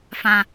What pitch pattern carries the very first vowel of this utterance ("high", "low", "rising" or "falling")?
high